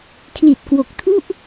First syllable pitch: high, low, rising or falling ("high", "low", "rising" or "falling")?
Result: low